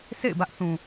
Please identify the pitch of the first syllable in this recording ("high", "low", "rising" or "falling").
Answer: falling